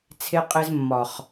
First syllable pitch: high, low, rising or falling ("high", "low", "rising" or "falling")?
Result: high